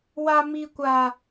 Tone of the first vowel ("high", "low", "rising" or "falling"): high